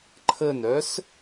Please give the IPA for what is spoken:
ǃʰ ə n œ s

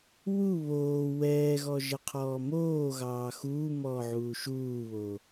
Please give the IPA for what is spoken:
w u β oː w ɛː ɣ ɔ ʒ ə qʰ ɔː m oː ɣ ɑː x uː m ɔː ʕ uː ʃ uː β o

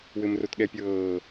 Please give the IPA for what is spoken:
w ɘ m r o t ɠ ɛ pʲ ɤː

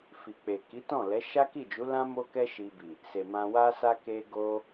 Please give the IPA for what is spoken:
f i˨ k͡p e˨ k i˨˦ t ɔ̃˦˨ l ɛ˨˦ ʃ a˦ k i˦˨ d͡ʒ u˨˦ l ã˦ m o˦ k ɛ˦ ʃ i˧ b i˨ | s e˨ m ã˧ w a˧ s a˧ k e˧ ɡ o˧

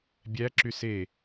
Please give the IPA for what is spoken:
bʲ æ ǁ y s e

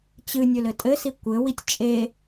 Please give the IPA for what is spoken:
t͡ɕ ɨ nʲ ɵ l ɘ tʼ ɘ s i kʷ ɘ w i tʲ t͡ʃʼ e

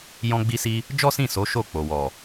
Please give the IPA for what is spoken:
j ɔ̃˧ ɡ͡b i˧ s i˧ | d͡ʒ ɔ˦ s ĩ˦˨ s o˨˦ ʃ o˦˨ k͡p o˨ w ɔ˨

